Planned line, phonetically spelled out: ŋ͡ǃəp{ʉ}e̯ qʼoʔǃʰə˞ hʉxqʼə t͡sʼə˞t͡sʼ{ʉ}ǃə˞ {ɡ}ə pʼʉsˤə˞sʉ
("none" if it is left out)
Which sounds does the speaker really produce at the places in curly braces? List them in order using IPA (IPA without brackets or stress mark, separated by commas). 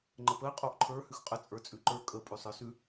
ə, ʉ, kʼ